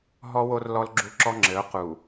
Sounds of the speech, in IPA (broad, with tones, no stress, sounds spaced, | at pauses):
ɦ ɔ˦ w o˦ r l ɔ˦ l ɡ͡ǁ u˦ ǁ ɔ˦ ŋ͡ǁ ɘ˨˦ ʊ̯ q u˨